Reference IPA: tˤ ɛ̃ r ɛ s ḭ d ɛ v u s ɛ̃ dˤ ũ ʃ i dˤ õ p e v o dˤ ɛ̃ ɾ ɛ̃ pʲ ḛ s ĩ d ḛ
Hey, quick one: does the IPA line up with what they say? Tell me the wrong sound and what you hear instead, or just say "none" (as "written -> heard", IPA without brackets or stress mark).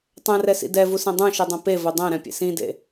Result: none